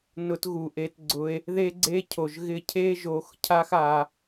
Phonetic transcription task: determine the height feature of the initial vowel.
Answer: high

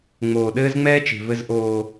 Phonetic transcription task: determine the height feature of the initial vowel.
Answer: mid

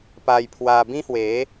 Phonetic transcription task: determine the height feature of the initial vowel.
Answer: low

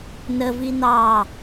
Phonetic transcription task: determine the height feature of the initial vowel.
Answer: mid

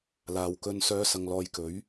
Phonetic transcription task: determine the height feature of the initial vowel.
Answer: low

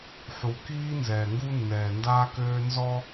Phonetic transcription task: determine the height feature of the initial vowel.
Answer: high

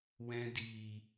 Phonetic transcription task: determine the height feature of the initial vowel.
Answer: mid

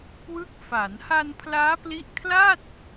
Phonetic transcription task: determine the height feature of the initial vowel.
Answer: high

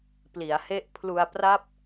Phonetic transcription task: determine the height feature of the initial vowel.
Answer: high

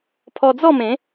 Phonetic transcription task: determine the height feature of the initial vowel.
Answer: mid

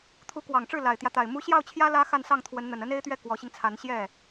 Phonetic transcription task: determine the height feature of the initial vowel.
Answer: high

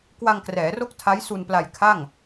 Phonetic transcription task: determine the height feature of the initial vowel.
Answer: low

